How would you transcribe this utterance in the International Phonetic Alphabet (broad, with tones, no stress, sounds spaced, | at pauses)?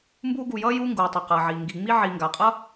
m b uː˦ ɡ u˨ j ʌː˥ j uː˦ ŋ ɡ uː˩ tˤ i˩ q ʌː˩ ʕ iː˩ ŋ ɡ i˨ ŋ͡m i˥ ʕ iː˨ ŋ ɡ a˩ qʼ ʌ˥